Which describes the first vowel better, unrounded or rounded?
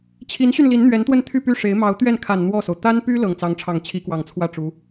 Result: unrounded